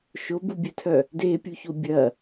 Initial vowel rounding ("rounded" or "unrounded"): rounded